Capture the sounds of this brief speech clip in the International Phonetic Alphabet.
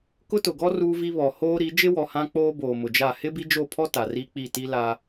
kʊ˦tʊ˨ɡɔ˦ ruː˦vi˦βɔ˨ hoː˦ɾi˨˦ d͡ʒɪ˦wɔ˨ hã˦k͡poː˦ boː˨mʊ˨d͡ʒa˦˨ hɪ˦bi˦d͡ʒo˦˨pʰɔ˦ ta˨ri˦k͡pi˦˨ ti˦la˦

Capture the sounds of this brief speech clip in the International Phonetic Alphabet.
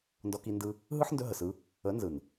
ndɔ˧ki˧ ndɯ˦ | ɦɯ˦ħndɵ˧ɦə˨sɯ˧ | ə˨˦ nzɯ˨n

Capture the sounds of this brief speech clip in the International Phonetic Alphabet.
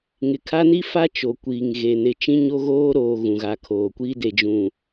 ŋɪ˨ kʰa˦ni˦fa˦ t͡ʃo˨kʷiː˨ŋɣe˨ nɪ˨t͡ʃĩ˦ɲo˦ ɣoː˦ ɾoː˨ ɣũ˨ɣa˨kʰoː˨kʷiː˦ de˨d͡ʒũ˨

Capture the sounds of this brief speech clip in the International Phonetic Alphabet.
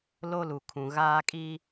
lo˦lu˨kʰũ˨ ɣaː˦kʼi˦

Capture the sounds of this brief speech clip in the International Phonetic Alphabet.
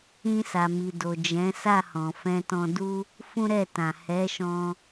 ĩ˧sa˨mi˨do˨ d͡ʒɛ̃˨˦sa˦˨hɔ̃˨ fɛ̃˧tɔ̃˧du˦ | fũ˦ɾɛ˦˨tã˨ hɛ˨˦ʃɔ̃˧

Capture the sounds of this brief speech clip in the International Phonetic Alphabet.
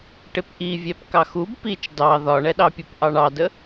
ʈɪpʔivʲɛp kɑxub pit͡ʃ dɑ ðɒɳɛɗɑpʲup ʔɑɳɑdə

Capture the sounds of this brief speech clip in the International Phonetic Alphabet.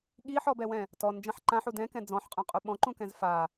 ɠiħɔbɛwɛ̃ | tɔn d͡ʒãħǃãħu dɛ̃kɛ̃ d͡zɔ̃ħqʼũqʼu ɓɔ̃ǃũkɛ̃z fa

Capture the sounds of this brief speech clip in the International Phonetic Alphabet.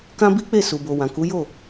kã˦bi˦k͡pe˦˨ su˨bo˨ wã˨ku˨˦ jo˦˨

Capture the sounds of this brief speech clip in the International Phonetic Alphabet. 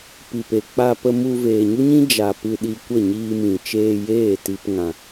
pi˨pe˨k͡pa˧ pə˧mu˧ veː˨ɲu˦ɲĩ˦ d͡ʒa˨ pɨ˧ɗi˧ kʷə˦˨ɲiː˧mĩ˨ t͡ʃeː˧jeː˦˨ ti˧p ŋã˧

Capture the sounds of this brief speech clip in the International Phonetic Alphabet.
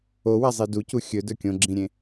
owazˤi ducu xʲɵdɵ kʲõɡ͡ǁĩɾʲẽ

